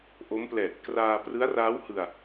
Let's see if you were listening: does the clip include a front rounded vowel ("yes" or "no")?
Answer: no